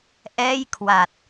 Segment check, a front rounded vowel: absent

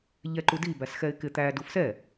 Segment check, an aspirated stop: absent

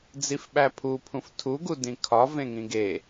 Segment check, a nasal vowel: present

